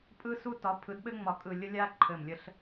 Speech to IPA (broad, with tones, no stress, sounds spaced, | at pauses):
pʼ ɯ˧ s u˧ t ɒ˩˧ pʰ ɯ˩˧ d ɓ ɘ˧ ŋ͡m ɒ˨˩ kʼ ɯ˨˩ lʲ ə˧ lʲ a˧ ǃʰ ɘ˨˩ m lʲ ə˧ ɬ